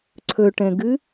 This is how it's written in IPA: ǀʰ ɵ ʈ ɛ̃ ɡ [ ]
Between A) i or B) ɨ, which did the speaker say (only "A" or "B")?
B